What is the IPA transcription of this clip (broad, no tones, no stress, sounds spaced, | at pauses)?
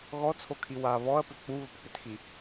ɣ ɔ t͡sʰ o kʰ i w a β ɔ ɐ̯ p ʏ k͡p u β ə p k͡p ʏ t x i